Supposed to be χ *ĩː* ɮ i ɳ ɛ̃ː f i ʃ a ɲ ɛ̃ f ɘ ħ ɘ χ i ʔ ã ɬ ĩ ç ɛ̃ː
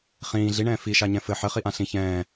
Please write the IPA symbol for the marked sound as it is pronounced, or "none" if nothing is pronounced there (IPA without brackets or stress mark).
ĩː